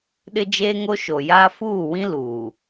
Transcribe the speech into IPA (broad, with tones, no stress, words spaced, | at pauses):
ɗɪ˦d͡ʒeː˦ŋo˦ ʃo˨jaː˦ fuː˦˨wĩ˦ luː˨